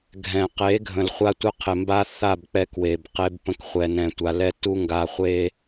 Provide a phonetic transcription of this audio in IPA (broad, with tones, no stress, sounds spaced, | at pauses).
ɡʱ ɛ̃˨ q e˨˦ ɡʱ ə̃˨ l χʷ a˦ tʷ ə˦ qʰ ɪ˨ m b a˦ θ a˦˨ b k͡p ɛ˦ k w e˨ b q e˦ b p ə̃˦ k χʷ ɛ˨ n ɛ̃˨ tʷ a˨ l ɛ˦ t u˦ ŋ ɡ a˨ χʷ e˦